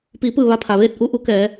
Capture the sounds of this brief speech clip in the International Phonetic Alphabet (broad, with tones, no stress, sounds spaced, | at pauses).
p iː˩˧ p ɯː˧˩ ʋ a˧ pʰ a˩ ʋ eː˥˨ t̚ ʔ u˧ ʔ u˧˥ k ɛː˩˧